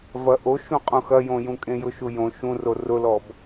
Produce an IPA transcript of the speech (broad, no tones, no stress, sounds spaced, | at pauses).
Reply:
v ɐ ʔ o ʃ ũ qʼ ũ x ɐ j õ j ũ kʼ ẽ j ʊ ʃ u j õ ʃ ũ r o r ʊ l ɔ b